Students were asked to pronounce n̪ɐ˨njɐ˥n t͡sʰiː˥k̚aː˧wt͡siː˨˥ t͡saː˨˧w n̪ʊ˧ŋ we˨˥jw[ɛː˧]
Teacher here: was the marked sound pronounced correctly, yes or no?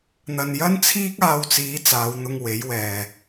no